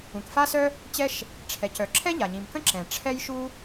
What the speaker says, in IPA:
ũ˩ k f a˥ s œ˥ | t͡ɕ ɛ˥ ʃ | ʈ͡ʂʰ ɛ˩ c œ˩ ǁʰ ɛ˥ ʎ a˩ ɲ ĩ˩ m k ə̃˥ ǁ ɛ̃˩ ʈ͡ʂʰ ɛ˥ j ʃ u˥

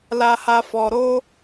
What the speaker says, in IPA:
l a˧ h a˧ f ɔ˨ ɾ o˧

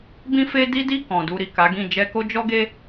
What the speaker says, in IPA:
b ĩ˦ f e˦ d i˦ d i˦˨ k ɔ̃˨ d u˧ ɾ i˨ k a˨˦ ɡ ĩ˦˨ d͡ʒ ɛ˧ k o˦ d͡ʒ ɔ˦ ɡ e˦

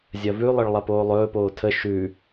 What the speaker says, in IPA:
zʲ ɐ v ʉ lˠ ə ɭ lˠ ɐ p oː lˠ ɵː p oː tʰ ə ʃ ʉ

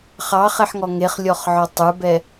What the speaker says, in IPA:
χ ɑ χ ɛ ħ ŋ ɔ ŋ e χ lʲ ɔ χ ʕ ɔ tˤ ə˞ b ɛ

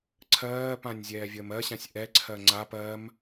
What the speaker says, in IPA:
ǀʰ ɜː p ã nʲ zʲ ɛː vʲ əː m ɜ ɕ ã sʲ ʔ ɛ ǀʰ ɜ ŋ͡ǀ a p ɜ m

